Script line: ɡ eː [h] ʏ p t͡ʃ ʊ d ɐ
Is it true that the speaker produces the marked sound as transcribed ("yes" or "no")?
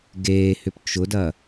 yes